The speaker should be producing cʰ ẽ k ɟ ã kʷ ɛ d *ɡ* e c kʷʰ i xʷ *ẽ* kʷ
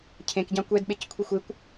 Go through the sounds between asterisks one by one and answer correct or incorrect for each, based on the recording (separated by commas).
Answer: incorrect, incorrect